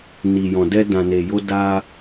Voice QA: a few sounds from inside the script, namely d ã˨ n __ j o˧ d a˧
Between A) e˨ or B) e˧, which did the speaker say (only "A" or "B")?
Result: A